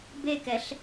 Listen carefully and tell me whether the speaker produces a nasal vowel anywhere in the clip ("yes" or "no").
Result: no